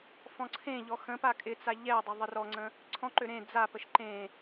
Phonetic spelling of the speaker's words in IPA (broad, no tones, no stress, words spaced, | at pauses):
fɔ̃ǀʰẽʎɔ xə̃ pakʼɪt͡sa ʎɛdˤə ðˤərɔŋ͡ǀə̃ | ǀʰɔ̃ǃø ɾẽ d͡zapəʃ ǃẽ